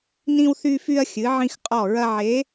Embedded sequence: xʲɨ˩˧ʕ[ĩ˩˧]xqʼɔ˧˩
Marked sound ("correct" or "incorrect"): incorrect